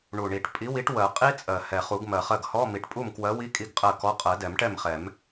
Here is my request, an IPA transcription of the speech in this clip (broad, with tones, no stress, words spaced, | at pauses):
ɳu˨˩ɳi˨˩˦ʈ pʼi˨˥wi˨˥ʈ wɜ˨˩˦ qʼi˦˥ t͡sʼɜ˨˩ hɛ˨˩χu˨˩˦ɡ mɜ˨˩χɜ˥˩ɡ hɔ˧˥˧ mi˨˩ʈpʼu˥˩mkwɜ˨˥wi˧˥˧ kʼi˥˩ɡqʼɜ˥˩kɔ˧˥˧ qʼɜ˨˩˦dɛ˨˩˦mʈɛ˥˩mχɛ˨˩˦m